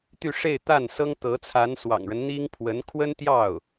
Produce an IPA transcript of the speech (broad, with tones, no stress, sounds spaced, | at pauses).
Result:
t̪ y˥˧ ʂ e˥˧ ɪ̯ t̪ a˥˩ n s ɤ˥ ŋ t̪ ɤ˧˥ t͡sʰ a˧˥ n s w ɑ̰˨˩ ŋ ɻ ə˦ n n̪ i˥ ŋ pʰ w ə˧˥ n kʰ w ə˥ n t̪ j ɑ˥˩ ʊ̯